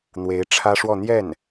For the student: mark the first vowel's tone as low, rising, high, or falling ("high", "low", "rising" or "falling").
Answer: rising